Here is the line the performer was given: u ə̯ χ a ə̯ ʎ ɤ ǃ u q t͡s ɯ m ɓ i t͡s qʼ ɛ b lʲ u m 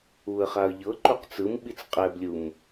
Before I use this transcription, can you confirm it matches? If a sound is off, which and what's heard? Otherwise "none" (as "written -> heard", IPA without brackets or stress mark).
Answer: none